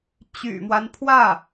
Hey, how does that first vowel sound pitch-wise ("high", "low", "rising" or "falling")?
low